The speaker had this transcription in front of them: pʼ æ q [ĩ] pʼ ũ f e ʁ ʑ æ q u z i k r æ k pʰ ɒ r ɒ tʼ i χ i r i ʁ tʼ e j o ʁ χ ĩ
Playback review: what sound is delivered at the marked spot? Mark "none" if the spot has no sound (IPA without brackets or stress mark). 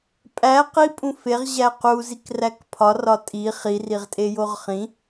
i